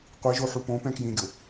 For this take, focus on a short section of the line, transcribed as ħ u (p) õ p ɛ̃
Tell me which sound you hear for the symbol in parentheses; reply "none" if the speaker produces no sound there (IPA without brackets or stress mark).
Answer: p